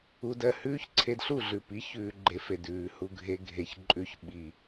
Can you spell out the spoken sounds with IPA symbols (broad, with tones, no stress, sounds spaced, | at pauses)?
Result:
u˧ d ɜ˦˨ h ʉː˦ ç ǀʰ e˧ d ɬ u˦˨ ɮ ʉ˨ p i˨˦ ç ʉː˧ ɡ͡ǃ e˧ f e˨ d ʉː˨ h u˧ ɡʱ e˧ ɡʱ e˨ ç ǃʼ ʉ˧ ç ɓ i˨